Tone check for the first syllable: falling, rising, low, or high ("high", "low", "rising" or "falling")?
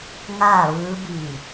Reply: falling